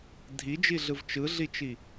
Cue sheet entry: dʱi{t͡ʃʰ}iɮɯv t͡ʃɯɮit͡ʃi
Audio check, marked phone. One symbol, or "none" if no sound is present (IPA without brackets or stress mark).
d͡ʒ